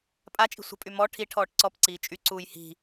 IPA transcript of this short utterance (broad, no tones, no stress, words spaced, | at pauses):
pʼat͡ʃʼi̤ sʷə̤pʼy mɔ ʈʰi ʈʰɔːʈǀɔpǀiː t͡ʃʼyǀuːj hi̤